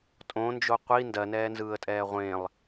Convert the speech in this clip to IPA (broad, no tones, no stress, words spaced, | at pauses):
tʼõnd͡ʒo qʷi ndɜnɛːnzɯːə̯tʼɛː ʁʷẽlˠ